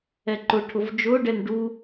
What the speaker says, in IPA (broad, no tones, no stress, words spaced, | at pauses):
ɛǃʊʈʰʊv d͡ʒʊːɖɛn ɖu